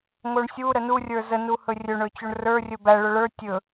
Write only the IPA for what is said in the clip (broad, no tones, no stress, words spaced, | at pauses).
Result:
ŋoɳsʲu ɾənu rʲə˞zə nuhɵrʲɵ ɳɵt͡ɕoɳrə˞ rʲɵbæ ɭɵɭə˞ tʲɵ